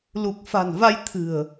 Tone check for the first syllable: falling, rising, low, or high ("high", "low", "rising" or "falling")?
low